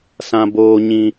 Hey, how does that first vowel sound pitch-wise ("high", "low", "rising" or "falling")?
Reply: high